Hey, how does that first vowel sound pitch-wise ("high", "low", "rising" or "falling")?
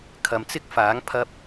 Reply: low